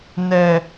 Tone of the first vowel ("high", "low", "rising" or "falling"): high